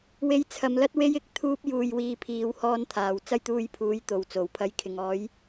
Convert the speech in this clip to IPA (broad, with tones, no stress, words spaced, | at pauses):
we˧jt͡sʰɐ˨˧mlɐ˥t̚ we˥jɪ˧k̚ t̪ʰuː˥p̚juː˧jwiː˧ pʰiː˨˧w hɔː˧nt̪ʰaː˨˩w t͡sɐ˥jt̪uː˧jpʰuː˨˥j t̪o˨wt͡so˨˩wpʰɐ˧j kʰɪ˨ŋ ɔː˨˥j